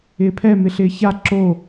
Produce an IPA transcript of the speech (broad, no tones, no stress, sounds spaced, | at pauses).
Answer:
ɪː pʰ ɛ m ɪ ɬ ɪː ç a ǁ o